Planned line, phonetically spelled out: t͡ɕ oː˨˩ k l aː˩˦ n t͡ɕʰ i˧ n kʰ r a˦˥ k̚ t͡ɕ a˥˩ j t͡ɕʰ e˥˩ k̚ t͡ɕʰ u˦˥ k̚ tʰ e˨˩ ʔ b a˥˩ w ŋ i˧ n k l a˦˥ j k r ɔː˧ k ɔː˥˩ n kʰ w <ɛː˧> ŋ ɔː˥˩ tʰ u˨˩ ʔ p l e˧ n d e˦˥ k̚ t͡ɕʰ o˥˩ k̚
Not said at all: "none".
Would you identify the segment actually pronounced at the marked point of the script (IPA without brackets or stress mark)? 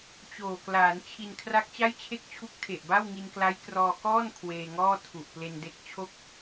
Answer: eː˧